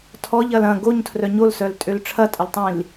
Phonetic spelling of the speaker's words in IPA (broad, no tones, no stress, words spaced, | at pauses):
tʰɔʎɐl ɐ̃ ɡoɲtʰrœ ɲolsœltʼøl ʈ͡ʂʰɐtʼəltˤĩl